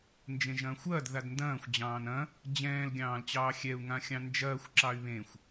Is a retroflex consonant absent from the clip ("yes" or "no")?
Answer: yes